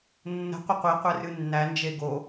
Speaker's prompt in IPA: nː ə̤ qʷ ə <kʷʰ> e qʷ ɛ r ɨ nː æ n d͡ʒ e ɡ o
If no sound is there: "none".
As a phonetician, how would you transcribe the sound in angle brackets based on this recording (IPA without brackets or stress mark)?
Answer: qʷ